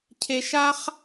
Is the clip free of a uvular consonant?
no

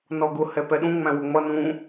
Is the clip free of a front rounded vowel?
yes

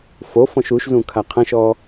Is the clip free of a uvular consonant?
no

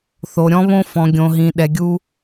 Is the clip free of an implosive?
no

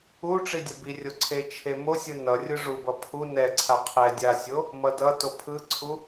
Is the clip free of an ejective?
yes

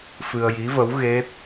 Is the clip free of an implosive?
yes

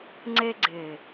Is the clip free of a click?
no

